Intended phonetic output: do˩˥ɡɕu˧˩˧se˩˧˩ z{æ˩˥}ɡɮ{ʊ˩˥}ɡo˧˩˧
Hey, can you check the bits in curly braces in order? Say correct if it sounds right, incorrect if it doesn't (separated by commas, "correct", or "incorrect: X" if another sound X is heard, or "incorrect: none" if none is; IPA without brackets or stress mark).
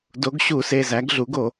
correct, incorrect: u˩˥